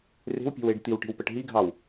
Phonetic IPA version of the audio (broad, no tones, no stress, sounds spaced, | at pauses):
r e̤ w pʲ e̤ w e ɖ t̪ i w ʈ i̤ w p ə ʈ ɦ i ɡʱ ɑ w